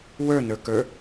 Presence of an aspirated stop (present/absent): absent